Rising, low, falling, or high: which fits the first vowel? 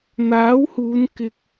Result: rising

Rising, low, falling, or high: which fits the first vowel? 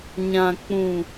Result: low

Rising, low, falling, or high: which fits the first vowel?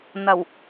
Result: low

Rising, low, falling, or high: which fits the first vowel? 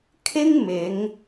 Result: high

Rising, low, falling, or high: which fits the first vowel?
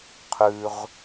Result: low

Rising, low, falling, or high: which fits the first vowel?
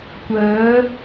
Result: rising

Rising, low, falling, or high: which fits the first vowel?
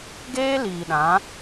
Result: high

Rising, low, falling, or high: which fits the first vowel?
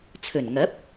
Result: low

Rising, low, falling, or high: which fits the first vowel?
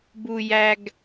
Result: low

